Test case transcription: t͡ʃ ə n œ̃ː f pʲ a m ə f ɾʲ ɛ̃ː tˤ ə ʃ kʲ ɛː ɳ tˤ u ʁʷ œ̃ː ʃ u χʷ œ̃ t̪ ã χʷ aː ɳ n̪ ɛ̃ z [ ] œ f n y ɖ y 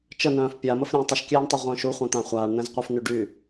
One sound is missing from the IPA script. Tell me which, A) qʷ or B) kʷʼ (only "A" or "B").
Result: A